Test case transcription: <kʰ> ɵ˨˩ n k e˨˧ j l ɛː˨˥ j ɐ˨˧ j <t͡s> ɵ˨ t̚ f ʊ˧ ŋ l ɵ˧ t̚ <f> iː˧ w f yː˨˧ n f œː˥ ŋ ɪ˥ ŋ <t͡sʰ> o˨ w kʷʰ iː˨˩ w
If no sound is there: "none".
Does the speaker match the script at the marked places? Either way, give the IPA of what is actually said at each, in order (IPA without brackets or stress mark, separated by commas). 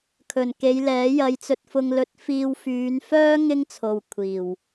kʰ, t͡s, f, t͡sʰ